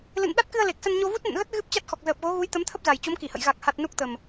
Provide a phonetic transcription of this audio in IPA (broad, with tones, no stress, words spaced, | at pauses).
lɨ̰˧˨n ɗa˦˥t̚kɨ˧ə̯ le˨˩k̚sə˧nɲo˧ vu˦˥t̚nə̰˧˨nɣə˦˥t̚ ɣɨ˦˥p̚ t͡ɕa˦˥t̚xɔ˨˩k̚ zəː˨˩p̚ɣo˨˦ ɣu˨˦jt̪ə˨˦mt̪ʰə˦˥p̚ za˨˩jt͡ɕo˨˦mki˧˩hə̰˧˨j ɣa˨˩k̚ha˨˩t̚ nu˦˥k̚t̪ə˨˩m